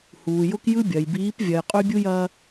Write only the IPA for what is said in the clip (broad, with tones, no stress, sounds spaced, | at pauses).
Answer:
h uː˨ j ʊ˦ k j ɯ˦ bʲ ɐ˨ j b iː˨˦ p vʲ ɐ˨ j qʼ y˦ bʲ u˦ j ɐː˦